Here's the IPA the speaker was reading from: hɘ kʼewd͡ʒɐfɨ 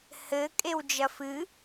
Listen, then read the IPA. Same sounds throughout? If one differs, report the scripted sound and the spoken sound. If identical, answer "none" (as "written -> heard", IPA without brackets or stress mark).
none